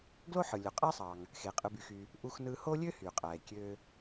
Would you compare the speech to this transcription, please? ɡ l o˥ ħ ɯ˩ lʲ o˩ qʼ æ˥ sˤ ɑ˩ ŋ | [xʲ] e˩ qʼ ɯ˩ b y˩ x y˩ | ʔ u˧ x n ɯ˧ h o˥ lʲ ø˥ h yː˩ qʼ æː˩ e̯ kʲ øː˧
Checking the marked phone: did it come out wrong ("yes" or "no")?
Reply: yes